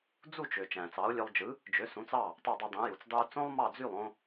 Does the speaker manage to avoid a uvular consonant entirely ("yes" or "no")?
yes